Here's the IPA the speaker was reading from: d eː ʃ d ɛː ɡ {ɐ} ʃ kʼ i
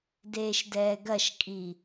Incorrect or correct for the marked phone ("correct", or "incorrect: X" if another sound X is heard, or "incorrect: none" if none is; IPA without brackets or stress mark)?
correct